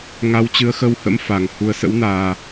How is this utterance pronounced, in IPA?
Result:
ŋ a˨˦ w t͡ɕ ɨ˨˦ ə̯ x ə˧ w h ə̰˧˥ m f a˨˩ ŋ h u˨˩ ə̯ s ə̰˧˥ w n aː˨˩

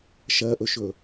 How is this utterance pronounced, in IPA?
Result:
ʃ ɜ ʔ ɵ ʃ ɵ

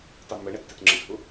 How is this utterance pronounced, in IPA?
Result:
tˤ i m ə ɳ ɛ tː i t ŋ͡ǁ ə ɖʱ u

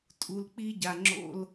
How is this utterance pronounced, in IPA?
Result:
tʼ u˦ l k͡p i˥ ɟ a˦ ŋ͡ǁ o̰˥ l

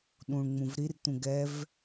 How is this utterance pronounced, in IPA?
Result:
ɗ ũ ɳ ŋ͡m ũ v ɾ i r t̪ ũ ɡ ɛ v

